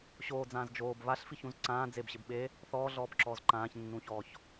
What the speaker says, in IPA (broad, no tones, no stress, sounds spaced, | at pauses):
ɕ oː d͡z ãː z d͡ʒ oː b β a ɬ f i ç ũ z ǀ ãː d͡z e b ɕ ɪ b ɓ e | θ ɔː ɮ ɔː b ǁ ɔː z ǃ ãː ç nː ũː ç ɔː ç